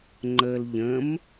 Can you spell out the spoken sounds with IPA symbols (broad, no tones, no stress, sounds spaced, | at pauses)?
ŋ͡ǃ ə l ʎ ə̃ m